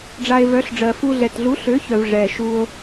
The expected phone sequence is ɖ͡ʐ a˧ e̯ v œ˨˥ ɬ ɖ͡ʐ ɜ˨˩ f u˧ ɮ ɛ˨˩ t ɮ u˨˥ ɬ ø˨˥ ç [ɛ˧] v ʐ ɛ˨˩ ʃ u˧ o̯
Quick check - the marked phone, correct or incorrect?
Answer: incorrect: œ˧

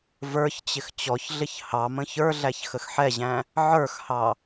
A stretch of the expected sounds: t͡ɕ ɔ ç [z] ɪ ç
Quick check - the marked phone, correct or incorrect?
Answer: incorrect: ɮ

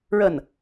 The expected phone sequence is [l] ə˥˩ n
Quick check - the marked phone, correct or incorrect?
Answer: incorrect: ɻ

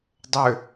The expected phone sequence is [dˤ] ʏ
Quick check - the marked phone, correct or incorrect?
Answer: correct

